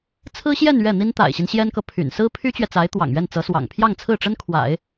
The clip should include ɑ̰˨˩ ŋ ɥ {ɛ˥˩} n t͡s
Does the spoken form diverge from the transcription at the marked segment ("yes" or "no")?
no